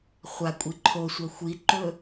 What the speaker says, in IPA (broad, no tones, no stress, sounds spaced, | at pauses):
χʷ a kʷʼ i ǃʰ o sʷ ɐ xʷ i ǃ ɵ